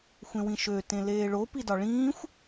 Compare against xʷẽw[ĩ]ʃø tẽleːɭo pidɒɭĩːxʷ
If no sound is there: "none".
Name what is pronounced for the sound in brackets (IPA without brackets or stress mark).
ĩ